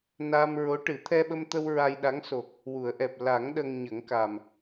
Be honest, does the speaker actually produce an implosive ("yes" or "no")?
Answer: yes